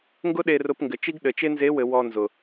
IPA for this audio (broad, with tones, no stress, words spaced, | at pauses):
ŋɡʊ˥ɗe˧rʊ˧p ŋɡɘ˩˧t͡ʃi˥ɡɗɘ˩˧t͡ʃe˥ nze˧˥wɘ˩˧ wɔ˧nzʊ˩